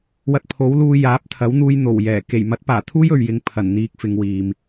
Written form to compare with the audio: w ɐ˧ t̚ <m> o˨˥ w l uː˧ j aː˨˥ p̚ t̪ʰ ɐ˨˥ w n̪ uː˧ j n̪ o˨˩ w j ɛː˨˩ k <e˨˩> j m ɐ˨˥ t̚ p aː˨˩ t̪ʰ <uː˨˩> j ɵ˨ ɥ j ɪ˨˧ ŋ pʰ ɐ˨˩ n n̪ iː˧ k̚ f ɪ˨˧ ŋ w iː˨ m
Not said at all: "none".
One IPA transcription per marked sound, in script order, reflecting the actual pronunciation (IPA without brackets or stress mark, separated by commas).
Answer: pʰ, e˨˩, uː˥